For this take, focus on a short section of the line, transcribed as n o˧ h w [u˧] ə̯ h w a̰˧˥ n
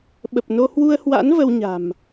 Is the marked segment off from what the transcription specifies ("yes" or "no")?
no